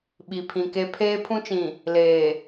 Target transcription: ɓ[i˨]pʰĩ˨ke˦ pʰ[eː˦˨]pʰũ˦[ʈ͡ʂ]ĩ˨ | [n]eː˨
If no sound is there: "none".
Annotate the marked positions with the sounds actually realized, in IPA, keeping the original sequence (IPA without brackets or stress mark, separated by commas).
i˨, eː˦, t͡ʃ, l